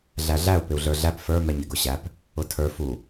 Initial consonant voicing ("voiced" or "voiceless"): voiced